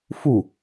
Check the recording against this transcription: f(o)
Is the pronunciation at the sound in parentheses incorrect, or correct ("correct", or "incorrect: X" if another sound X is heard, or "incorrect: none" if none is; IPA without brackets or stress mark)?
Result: incorrect: u